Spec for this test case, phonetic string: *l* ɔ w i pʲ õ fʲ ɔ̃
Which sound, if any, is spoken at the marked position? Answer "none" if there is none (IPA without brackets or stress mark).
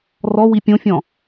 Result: r